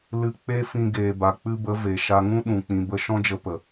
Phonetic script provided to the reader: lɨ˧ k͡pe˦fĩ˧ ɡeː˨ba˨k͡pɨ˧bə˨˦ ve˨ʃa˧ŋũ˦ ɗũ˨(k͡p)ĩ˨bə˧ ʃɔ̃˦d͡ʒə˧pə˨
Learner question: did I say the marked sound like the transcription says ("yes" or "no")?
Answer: yes